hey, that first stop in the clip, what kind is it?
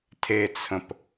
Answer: aspirated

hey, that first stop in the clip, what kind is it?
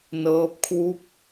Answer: plain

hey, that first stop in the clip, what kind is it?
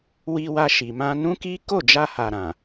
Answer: plain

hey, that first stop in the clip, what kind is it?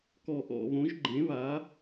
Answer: plain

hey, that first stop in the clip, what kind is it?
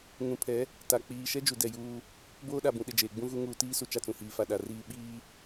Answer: aspirated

